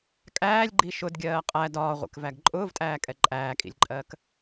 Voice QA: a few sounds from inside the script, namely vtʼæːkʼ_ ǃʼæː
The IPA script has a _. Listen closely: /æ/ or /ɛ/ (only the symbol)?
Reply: ɛ